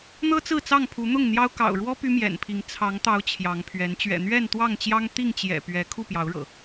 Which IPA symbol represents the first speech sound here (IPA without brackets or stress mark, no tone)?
n̪